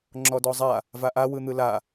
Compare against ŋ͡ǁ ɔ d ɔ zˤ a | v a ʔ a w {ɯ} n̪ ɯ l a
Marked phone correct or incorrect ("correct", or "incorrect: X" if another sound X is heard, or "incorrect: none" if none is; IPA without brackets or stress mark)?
correct